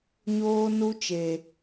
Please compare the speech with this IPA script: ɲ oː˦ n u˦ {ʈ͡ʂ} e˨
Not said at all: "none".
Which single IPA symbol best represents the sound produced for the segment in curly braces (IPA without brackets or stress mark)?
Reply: t͡ʃ